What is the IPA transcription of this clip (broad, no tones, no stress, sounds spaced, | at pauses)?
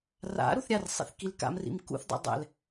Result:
r a̰ ɾ u θ ɾʲ a r sˤ ḭ θ k i l k a̰ m r ḭ m k ṵ θ dˤ ḭ dˤ ɛ̰ l